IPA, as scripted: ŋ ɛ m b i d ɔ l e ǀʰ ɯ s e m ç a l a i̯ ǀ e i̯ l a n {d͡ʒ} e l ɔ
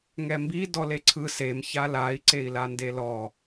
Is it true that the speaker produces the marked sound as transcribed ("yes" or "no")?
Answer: no